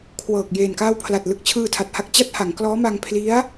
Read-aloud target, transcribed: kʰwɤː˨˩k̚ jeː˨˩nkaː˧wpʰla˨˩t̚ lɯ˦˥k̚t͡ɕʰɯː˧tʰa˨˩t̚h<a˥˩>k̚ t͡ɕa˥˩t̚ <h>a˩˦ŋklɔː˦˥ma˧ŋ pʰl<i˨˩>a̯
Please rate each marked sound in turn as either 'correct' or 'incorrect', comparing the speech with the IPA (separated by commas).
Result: correct, correct, incorrect